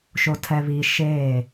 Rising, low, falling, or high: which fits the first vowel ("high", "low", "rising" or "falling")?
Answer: low